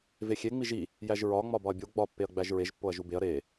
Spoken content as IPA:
v e xʲ e ŋ͡m i ʒ i | j æ ʒ ɹ ɒ ŋ͡m ɒ b ɒ ɐ̯ bʲ o ɡ͡b ɒ pː e ɐ̯ ɡ͡b æ ʒ ɹ e ʒ pː o ɐ̯ ʒ u b e ɐ̯ ɾ e

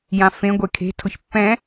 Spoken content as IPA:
j ã f ẽ ɡʷ e kʰ e̤ tʰ ʊ ç pː ɛ̃

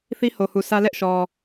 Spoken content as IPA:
θ i˦ h o˨ h u˨ s ä˦ l ɛ˦ ʔ ʃ ɔ˨

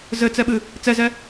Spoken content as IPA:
z ɘ t͡s ɛ ɓ ɨ | t͡s ɛ z ɛ

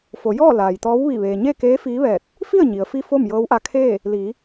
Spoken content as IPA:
f o˩˧ j ɔː˥˨ l aː˩ j t̪ ɔː˧˥ w ʋ i˧˩ ʋ eː˩ ɲ e˥˨ k eː˧˥ f iː˧˥ ʋ ɛː˧˩ t̚ | f i˥˨ ə̯ ɲ i˩ ə̯ f i˧ f o˥˨ m j ɤː˧˥ w ʔ a˧˥ kʰ eː˥˨ | l iː˩˧

